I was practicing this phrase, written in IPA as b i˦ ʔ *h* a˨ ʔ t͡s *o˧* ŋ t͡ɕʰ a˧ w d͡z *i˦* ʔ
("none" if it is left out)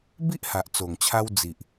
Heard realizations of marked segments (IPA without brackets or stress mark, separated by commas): h, o˨˩, i˨